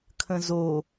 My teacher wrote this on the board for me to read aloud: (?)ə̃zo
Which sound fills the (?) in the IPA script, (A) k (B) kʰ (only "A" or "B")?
B